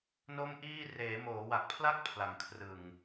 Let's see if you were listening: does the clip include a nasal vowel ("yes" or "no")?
no